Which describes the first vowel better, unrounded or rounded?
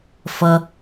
unrounded